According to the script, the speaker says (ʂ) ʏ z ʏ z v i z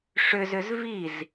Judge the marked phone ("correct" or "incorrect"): correct